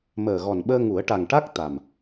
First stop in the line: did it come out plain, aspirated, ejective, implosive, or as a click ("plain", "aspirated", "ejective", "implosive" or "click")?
implosive